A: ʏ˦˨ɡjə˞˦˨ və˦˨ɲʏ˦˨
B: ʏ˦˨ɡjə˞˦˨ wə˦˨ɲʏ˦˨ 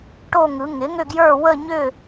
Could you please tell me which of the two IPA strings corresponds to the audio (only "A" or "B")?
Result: B